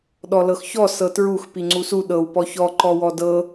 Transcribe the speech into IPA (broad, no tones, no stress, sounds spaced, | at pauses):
ɗ ɔ l ɤ x ç ɔ s ɤ t ɹ u x p i ŋ͡ǀ u s u ɗ ɤ w p ɔ ç ɔ ǃ ɔ w ɔ d ɤ